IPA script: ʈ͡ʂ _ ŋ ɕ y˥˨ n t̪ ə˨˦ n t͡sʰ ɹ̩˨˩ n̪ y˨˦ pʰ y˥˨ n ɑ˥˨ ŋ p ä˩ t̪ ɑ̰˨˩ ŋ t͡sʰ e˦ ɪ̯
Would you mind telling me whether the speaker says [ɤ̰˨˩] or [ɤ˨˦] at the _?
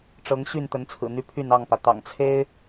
ɤ˨˦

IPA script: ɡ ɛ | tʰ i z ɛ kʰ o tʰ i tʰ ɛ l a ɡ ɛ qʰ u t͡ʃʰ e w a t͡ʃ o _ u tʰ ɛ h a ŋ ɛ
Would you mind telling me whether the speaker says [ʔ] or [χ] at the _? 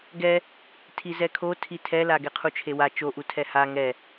ʔ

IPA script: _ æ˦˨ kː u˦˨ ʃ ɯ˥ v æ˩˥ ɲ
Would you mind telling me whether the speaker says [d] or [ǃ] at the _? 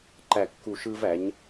ǃ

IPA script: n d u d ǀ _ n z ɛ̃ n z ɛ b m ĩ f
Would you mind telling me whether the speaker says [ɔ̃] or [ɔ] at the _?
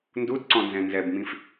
ɔ̃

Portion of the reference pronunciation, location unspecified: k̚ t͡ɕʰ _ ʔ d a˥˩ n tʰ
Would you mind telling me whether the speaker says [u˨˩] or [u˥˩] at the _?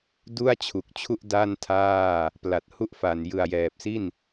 u˥˩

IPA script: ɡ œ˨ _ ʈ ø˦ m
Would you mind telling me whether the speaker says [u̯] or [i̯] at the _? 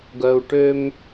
u̯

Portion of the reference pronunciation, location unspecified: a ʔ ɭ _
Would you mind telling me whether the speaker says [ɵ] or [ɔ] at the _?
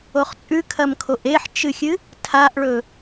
ɵ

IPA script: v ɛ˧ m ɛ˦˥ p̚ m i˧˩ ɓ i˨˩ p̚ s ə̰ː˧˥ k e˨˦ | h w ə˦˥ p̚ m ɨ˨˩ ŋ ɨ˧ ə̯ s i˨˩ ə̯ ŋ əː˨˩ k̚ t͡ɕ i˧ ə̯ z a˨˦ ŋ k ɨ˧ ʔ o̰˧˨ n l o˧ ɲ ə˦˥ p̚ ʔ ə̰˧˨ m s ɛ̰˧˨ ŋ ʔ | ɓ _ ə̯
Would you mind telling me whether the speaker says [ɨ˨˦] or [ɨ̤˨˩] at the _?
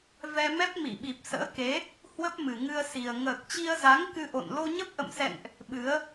ɨ˨˦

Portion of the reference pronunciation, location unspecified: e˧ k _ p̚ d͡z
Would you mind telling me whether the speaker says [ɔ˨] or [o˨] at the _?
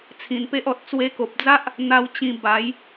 o˨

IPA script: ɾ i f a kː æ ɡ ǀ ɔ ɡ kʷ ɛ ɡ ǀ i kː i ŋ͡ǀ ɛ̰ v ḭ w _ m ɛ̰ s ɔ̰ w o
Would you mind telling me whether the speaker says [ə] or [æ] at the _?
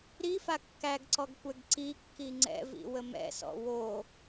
ə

